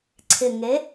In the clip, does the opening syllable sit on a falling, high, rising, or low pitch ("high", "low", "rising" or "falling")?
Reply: low